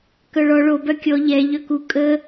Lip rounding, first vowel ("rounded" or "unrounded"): rounded